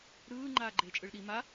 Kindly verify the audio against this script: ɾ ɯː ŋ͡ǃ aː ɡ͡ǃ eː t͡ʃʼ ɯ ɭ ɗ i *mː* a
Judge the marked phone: incorrect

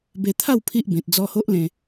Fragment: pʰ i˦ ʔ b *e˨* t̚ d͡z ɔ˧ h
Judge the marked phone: incorrect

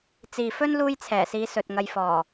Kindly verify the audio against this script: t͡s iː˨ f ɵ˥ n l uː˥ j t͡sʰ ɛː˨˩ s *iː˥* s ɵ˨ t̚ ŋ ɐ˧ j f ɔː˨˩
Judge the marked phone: incorrect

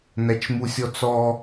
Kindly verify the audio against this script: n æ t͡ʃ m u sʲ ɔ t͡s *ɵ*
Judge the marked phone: incorrect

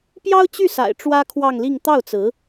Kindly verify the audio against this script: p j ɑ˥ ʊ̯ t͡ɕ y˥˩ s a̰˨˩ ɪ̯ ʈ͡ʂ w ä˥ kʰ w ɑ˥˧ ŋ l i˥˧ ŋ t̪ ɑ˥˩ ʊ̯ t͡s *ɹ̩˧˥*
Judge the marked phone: correct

